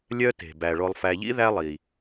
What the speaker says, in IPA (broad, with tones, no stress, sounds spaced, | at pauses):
lʲ œ˦ t e̤˩ b æ˩ ɭ o˨ lˠ f æ˨ ʎ ḭ˥ ð æ˦ lˠ i˩